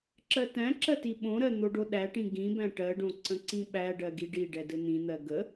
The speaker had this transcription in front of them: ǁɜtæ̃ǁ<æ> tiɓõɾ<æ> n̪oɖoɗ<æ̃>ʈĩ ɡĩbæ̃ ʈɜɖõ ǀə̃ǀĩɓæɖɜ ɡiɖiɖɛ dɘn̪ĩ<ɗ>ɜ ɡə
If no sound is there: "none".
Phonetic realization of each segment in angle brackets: ɜ, ɜ, æ, n̪

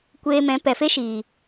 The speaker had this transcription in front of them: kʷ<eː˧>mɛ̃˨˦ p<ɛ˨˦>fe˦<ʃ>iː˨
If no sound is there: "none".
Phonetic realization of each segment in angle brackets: eː˧, ɛ˨, ʃ

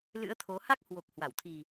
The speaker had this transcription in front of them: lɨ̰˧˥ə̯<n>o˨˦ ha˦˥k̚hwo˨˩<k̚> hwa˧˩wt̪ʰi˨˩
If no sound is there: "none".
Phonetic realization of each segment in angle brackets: t̪ʰ, k̚

